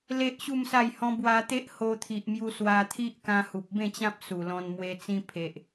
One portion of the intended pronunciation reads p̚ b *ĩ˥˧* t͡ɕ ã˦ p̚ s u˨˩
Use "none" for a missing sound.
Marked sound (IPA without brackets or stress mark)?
ẽ˥˧